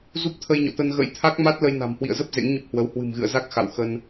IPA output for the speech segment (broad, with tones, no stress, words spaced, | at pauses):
zu˦˥p̚t̪ʰə˧jɲɔ̰˧˨t̪ə˧n ɣə̰˧˥jt̪ʰa˦˥k̚ma˦˥t̚lə˧j na̤˨˩mhwḭ˧˨ə̯zə˦˥p̚ zḛ˧˥ŋɲə˦˥p̚hwə˨˦w hwɨ̤˨˩mɣɨ̰˧˨ə̯za˦˥k̚ xa̰˧˨w xə˧n